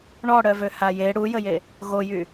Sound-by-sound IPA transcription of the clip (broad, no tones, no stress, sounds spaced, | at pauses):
ɳ ɔ ɽ œ v ø h a j e ɽ u j ə j e | ɣ o j y